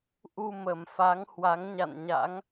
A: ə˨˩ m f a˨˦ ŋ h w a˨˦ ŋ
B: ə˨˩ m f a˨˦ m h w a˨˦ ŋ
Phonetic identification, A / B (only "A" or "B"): A